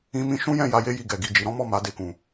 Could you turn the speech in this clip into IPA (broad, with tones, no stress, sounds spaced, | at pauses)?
ĩ˧ m ĩ˧ ʃ ũ˦ j ɛ̃˦˨ j a˧ j e˦ j i˧ ɡ ɛ˨ ɡ i˨ d͡ʒ i˨ ɾ ɔ̃˨˦ m ɔ˦˨ m a˨˦ d e˧ k ũ˨